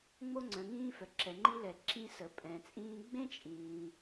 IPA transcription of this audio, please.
ŋ͡mo˧ŋ͡ǀœ̃˩ŋĩː˧fœ˩ ǁɛ˩ŋ͡ǃi˧lɛ˩ ǁĩ˧sə˩pʼɛ̃˩t͡sʼĩː˧ ɡ͡bẽ˥t͡ʃʼĩː˩

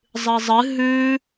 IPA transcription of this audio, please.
zˤɨzˤɨ ɦʉ

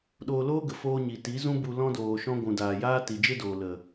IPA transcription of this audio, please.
ɗoː˧loː˦ɡə˨ foː˧ɲi˨ ti˨˦zũ˦bu˧ lɔ̃˧doː˨ ʃɔ̃˧ɡʷũ˨daː˨ jaː˧ ti˨d͡ʒe˦doː˨ lə˨

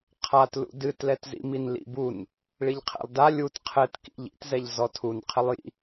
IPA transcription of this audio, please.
qʰatlṵ dɨtlɛt zḭminlḭbun | ɭiʎqʰɛ̰lˠda lʲut qʰɘtkḭʎ ḭtzɛʎ zɔtʰun qʰɘlˠjḭ

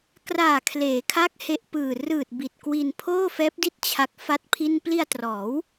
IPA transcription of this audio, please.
kraː˨˩kʰleː˩˦kʰa˦˥k̚ he˦˥ʔpɯː˨˩ rɯː˨˩t̚ bi˨˩t̚kwi˧n pʰoː˥˩ fɛː˦˥p̚di˥˩t̚ t͡ɕʰa˦˥k̚ fa˥˩t̚pʰi˥˩n pli˧a̯trɔː˩˦w

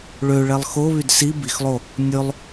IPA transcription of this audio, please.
ɭøɭɛlˠ xoβyd si bixlˠo | nʲɵlˠ

